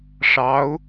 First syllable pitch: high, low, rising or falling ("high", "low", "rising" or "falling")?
rising